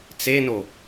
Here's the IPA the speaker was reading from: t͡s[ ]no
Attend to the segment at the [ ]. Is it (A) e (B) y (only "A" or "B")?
A